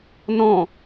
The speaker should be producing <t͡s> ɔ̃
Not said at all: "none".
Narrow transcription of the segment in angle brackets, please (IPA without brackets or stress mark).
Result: n